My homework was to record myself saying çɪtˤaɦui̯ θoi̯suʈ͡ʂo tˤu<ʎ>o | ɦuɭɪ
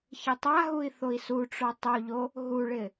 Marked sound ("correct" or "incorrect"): correct